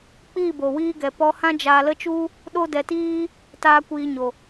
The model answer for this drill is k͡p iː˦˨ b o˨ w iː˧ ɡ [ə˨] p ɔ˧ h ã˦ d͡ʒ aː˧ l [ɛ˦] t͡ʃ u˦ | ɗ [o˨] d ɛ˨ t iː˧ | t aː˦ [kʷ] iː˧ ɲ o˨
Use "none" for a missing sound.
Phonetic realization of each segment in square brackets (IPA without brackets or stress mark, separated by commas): ɛ˨, ə˦, o˧, kʷ